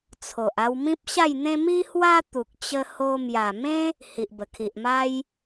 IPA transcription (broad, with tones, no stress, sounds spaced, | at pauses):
t͡sʰ o˨ ʔ a˧ w m ĩ˦ p̚ ɕ a˥˧ j n̪ ẽ˦ m i˦ h w a˦ t̪ u˨ k̚ t͡ɕ ə˧ h o˧ m j a˨˩ m ẽ˦ | h i˨ ʔ b ə˨˩ kʰ i˨ ʔ m a˦ j